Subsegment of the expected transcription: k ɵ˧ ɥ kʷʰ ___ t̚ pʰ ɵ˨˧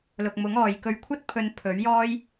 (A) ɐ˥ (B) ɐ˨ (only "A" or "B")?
A